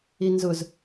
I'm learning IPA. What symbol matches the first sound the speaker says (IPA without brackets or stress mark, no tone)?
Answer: i